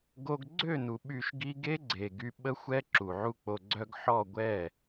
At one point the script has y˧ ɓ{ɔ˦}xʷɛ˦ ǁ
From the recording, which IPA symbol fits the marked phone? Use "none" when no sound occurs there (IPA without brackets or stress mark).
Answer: ə˦